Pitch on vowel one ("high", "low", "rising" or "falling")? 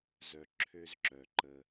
low